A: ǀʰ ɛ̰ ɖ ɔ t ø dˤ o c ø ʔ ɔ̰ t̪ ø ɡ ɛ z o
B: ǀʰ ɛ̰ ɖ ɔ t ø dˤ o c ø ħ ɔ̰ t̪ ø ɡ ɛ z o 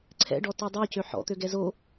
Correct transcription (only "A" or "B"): B